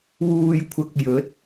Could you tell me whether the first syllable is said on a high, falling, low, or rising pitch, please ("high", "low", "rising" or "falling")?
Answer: low